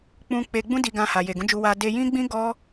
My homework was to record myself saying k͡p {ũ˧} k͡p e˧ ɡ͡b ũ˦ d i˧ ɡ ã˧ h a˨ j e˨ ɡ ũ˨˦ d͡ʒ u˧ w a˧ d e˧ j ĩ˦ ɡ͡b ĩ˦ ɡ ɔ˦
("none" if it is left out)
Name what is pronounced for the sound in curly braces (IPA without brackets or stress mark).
ũ˧